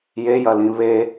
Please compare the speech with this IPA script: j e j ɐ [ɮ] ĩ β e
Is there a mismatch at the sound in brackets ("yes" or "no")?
yes